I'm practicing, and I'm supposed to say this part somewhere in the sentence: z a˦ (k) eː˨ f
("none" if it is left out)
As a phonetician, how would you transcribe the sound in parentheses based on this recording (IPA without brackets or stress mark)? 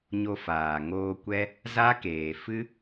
k